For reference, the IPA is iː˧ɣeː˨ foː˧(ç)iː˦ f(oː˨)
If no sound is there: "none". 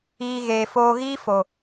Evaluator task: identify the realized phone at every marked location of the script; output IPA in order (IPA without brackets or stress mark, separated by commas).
ɣ, o˨